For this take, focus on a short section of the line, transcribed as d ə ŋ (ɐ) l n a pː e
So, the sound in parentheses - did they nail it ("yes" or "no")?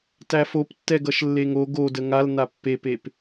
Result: no